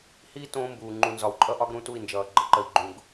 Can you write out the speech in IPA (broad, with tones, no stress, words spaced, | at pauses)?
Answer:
hi˦ tõː˦mbuː˨ ŋ͡ǃu˨nzɒ˨wǃʼʌ˦ʔɒ˦ɡ ɾũ˦tu˦˨i̯nd͡ʒʌː˨ ɡ͡ǃə˨ǃə˨i̯ ɡ͡ǃũ˨ɡ